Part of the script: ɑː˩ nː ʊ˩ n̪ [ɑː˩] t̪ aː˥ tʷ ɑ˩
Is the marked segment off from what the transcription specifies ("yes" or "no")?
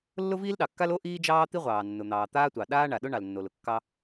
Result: no